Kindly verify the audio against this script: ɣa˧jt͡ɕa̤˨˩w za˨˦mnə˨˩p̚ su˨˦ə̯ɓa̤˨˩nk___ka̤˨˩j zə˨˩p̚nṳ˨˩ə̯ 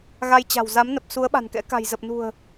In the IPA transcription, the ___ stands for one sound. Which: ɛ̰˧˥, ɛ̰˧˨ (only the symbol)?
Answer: ɛ̰˧˥